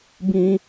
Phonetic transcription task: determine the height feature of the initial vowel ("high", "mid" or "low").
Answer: high